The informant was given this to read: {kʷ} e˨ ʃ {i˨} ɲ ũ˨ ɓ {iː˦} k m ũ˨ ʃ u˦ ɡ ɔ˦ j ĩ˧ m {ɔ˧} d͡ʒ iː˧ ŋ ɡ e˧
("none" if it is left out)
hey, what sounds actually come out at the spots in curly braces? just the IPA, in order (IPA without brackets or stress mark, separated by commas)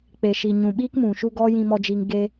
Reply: k͡p, i˨, iː˦, ɔ˧